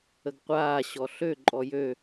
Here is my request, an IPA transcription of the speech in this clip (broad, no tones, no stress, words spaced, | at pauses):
əɡqʷaː ɕɔɬø ǃʼɔjø